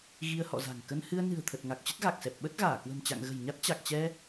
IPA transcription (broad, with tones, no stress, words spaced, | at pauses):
ɣi˧ə̯hɔ̰˧˨za̤˨˩ŋ kə˧n hɨ˧ə̯nɨ̤˨˩ə̯t̪ʰə˨˩t̚ ŋa˨˩k̚t͡ɕə˦˥t̚ɣa˨˩k̚sɛ˨˩p̚ ɓə˦˥t̚ɣaː˧˩kwə̤˨˩m t͡ɕa̰˧˨ŋɣə̤˨˩jɲa˦˥t̚ t͡ɕa˨˩k̚t͡ɕɛ˧